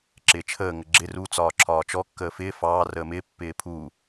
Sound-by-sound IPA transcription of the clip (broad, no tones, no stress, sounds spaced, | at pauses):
ǁ ɪː t͡ʃʰ əː ŋ ə ɡ͡ǁ ɪ r u t͡s ɒː ǁʰ ɒː t͡ʃ ɔ kː əː f ɪː f ɑː r əː m ɪː pː ɪː pʰ u